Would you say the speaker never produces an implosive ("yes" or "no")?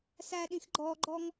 no